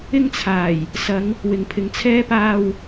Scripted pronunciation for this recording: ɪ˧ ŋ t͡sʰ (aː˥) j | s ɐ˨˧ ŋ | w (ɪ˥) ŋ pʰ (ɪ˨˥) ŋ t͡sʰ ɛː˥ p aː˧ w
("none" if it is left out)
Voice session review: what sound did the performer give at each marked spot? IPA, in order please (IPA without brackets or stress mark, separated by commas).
aː˨˩, ɪ˨, ɪ˨